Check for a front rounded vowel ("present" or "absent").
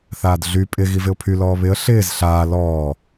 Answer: present